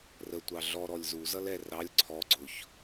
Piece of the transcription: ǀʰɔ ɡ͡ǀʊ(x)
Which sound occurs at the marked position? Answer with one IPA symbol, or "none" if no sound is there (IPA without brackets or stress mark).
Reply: ç